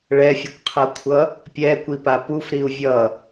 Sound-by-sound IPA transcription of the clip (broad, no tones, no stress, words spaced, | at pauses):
ɭɛfʲɯkʷqʰʌkʷʰʌ | pʲɛkʷipa pufɾiu̯ vʲʌ